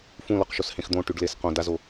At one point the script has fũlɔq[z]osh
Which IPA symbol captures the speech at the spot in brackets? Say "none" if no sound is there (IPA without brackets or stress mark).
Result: ʃ